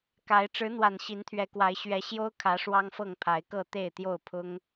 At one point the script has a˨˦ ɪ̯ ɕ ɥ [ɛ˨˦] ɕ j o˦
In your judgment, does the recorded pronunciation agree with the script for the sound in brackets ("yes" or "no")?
yes